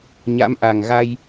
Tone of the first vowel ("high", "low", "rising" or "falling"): rising